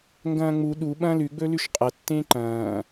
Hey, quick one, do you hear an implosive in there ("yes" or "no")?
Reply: yes